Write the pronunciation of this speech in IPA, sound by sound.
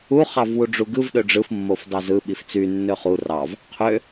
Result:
u χ ɑ v w u ɖ͡ʐ u ɡ ɯ v ɗ ø ɖ͡ʐ ɯ f mː o f d ɑ z ɯ ɓ i f t͡s y nː ø χ u r ɑ v | qʰ ø

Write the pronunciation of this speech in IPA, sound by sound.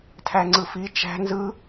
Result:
tʰ æ ŋ͡ǀ ɯ f i t͡ʃ æ̤ n z ɯ

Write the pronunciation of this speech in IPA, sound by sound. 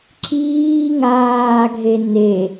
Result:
ǁ iː ŋ aː ɡʱ e n e

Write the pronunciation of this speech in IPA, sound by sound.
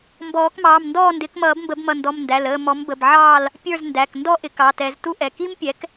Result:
m b ɔː˨˩˦ k m ɑː˩˧˩ m n d ɔː˥˨ n d ɪː˩˥ k m ʌː˨˩˦ b m b ə˨˩˦ b m ʌ˩˧˩ n d ɔ˩˧˩ m n d æ˩˧˩ l əː˥˨ m ɔ˩˥ m b ə˩˧˩ b ʕ ɑː˥˨ l | pʲ ə˞˥˨ z n d æ˩˧˩ k n d ɔ˥˨ ʔ ɪ˩˥ k ɑ˩˧˩ t ɛ˨˩˦ z t u˥ ʔ ɛ˩˧˩ k i˥ m pʲ ɛ˩˥ k

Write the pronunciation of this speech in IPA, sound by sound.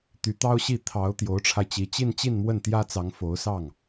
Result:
t̪ y˧˥ t̪ ɑ˥ ʊ̯ ɕ i˥˩ t̪ʰ ɑ˧˥ ʊ̯ t̪ j o˧˥ ʊ̯ ʈ͡ʂʰ a˧ ɪ̯ t͡ɕ i˧˥ t͡ɕ i˥˧ n t͡ɕ i˥˧ n m w ə˥˩ n t̪ j ä˥ t͡s ɑ˧˥ ŋ f o˧˥ ʊ̯ s ɑ˥˩ ŋ

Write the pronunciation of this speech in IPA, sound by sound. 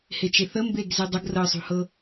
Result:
h e t͡ʃ e θ ə m b e ɡ z i dˤ ə ɡ r ɤ sˤ ṳ h ɤ

